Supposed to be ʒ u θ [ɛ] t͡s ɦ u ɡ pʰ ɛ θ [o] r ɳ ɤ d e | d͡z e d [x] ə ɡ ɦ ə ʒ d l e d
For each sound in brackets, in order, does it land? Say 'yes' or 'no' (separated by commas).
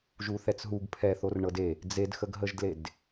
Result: yes, yes, yes